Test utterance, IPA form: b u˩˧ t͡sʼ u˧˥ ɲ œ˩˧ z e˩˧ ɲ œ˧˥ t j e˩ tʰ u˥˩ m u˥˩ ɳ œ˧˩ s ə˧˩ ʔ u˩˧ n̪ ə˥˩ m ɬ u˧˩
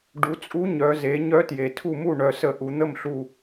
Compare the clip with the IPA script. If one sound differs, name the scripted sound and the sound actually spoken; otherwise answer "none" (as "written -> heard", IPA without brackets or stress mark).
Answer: b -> ɖ